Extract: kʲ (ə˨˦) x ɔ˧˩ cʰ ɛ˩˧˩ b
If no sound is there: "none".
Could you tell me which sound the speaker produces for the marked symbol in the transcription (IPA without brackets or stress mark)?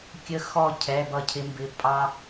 ə˨˦